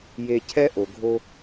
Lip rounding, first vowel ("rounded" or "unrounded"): unrounded